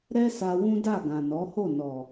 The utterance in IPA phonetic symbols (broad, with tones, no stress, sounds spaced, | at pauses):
ɾ ɛ˦ s a˧ w ũ˦ d a˦˨ ɡ ã˨ n ɔ˨˦ h o˦˨ n ɔ˨